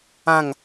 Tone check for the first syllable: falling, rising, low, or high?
falling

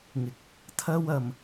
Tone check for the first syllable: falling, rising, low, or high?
rising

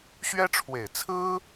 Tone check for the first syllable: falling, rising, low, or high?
high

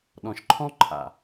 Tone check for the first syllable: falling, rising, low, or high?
low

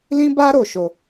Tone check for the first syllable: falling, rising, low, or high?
high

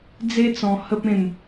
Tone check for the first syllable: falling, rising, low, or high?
high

